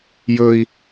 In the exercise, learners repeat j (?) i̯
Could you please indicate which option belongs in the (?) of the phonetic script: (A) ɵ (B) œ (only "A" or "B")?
A